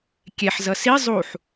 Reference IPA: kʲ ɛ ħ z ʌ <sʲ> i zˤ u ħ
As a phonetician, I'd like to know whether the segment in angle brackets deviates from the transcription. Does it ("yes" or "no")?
yes